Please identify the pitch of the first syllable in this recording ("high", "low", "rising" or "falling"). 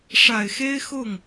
low